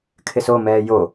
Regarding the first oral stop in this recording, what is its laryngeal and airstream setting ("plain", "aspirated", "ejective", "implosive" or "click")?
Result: aspirated